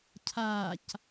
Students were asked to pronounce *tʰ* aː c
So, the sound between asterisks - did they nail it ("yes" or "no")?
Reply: no